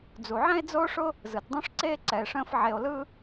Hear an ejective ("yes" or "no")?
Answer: no